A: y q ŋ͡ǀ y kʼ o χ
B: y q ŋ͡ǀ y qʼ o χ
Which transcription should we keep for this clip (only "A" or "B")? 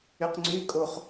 A